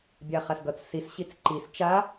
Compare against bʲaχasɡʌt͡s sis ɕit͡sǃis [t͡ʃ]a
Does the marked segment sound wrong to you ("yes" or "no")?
no